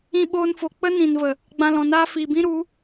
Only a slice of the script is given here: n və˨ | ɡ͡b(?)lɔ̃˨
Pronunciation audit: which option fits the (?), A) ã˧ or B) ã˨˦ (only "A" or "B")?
A